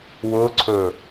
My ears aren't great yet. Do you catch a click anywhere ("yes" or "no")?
yes